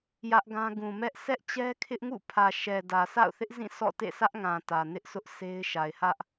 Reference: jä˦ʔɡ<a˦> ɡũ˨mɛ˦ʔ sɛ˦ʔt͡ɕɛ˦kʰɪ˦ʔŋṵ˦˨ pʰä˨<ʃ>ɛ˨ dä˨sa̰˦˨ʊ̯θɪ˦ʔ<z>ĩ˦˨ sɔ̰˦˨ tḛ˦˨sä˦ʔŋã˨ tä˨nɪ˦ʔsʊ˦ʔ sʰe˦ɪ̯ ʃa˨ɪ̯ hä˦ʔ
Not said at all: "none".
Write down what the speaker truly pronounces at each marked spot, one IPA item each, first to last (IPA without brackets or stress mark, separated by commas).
ã˦, ʃ, z